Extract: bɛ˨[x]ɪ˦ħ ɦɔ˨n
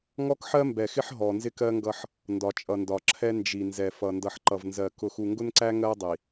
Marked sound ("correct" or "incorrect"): correct